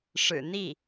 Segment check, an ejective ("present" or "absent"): absent